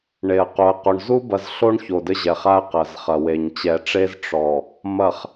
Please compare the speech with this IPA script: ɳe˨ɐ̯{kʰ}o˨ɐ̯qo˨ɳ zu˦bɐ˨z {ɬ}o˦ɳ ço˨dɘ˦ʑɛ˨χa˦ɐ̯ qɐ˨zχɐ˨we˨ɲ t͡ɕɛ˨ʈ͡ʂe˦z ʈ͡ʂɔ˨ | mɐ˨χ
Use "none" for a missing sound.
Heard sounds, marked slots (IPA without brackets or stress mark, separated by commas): q, ɬ